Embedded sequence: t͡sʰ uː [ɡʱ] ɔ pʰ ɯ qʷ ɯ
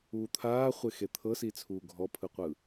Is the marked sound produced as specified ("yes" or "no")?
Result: yes